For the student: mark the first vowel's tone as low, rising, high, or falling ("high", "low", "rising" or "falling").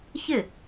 falling